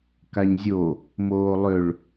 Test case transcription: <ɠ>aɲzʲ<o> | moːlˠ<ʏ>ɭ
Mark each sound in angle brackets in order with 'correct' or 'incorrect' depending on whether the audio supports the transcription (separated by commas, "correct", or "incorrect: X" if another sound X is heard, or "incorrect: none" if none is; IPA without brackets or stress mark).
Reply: incorrect: k, correct, correct